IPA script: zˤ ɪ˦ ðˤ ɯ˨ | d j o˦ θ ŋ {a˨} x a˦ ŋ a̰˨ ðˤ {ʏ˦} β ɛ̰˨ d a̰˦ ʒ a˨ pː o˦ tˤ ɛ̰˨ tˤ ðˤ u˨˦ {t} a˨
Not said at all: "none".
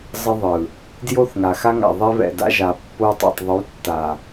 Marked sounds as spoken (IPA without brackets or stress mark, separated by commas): a˨, ɛ˦, tː